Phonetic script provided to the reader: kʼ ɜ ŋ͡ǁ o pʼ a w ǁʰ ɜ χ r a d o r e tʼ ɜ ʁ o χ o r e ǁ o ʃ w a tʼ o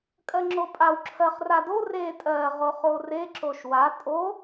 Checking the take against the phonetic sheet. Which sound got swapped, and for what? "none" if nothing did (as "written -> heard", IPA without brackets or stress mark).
none